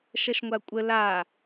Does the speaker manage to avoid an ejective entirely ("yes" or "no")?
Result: no